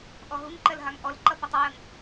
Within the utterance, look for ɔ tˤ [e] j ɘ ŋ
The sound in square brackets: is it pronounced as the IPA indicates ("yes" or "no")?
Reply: no